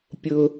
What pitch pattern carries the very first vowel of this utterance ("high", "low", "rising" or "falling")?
high